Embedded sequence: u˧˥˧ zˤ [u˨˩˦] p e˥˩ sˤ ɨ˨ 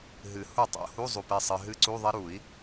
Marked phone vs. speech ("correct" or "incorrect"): incorrect